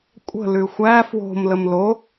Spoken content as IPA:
kʷʼ ə̤ l ʉ xʷ æ f w o̤ m l ə m l o

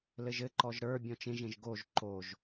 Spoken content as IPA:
l ɘ ʒ ɘ ǃ ɔ ʒ ɾ ə˞ bʲ ɔ̃ t͡ʃ ẽ ʒ ẽ ʒ ɡ o ʒ ǃ o ʒ

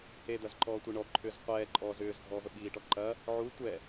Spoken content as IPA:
h e d̪ ɐ z ǃ ɔː tʷ e ɳ ɔ ǃʰ ʏː z qʷ ɛː ǃʼ ɔː z ʏː z ɡʱ ɔː v ə ɓ iː ʈ ɔ ǃ ɐ | ʕ u tʷ ɛ

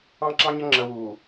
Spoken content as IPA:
ɑ̃˦ ǁ ɑ̃˦ ɲ ə˦ ŋ͡ǁ əː˨ w uː˨

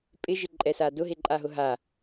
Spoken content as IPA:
pʼ ɪ ʒ ɪ ǃʼ ɛ s a d ʊ ɦ e ǃʼ a ɦ ʊ ɦ a

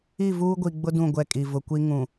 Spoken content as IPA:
i˦˨ v uː˦ ɡʷ i˨ ɡ͡b ʊ˦ d ũ˦˨ ɡʷ ɛ˦˨ kʼ i˨ v ʊ˨ kʷ i˦ ŋ ũ˨

